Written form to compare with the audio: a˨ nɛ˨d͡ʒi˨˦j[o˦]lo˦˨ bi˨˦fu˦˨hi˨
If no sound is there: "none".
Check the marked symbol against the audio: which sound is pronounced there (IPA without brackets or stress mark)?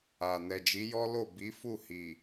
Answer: ɔ˦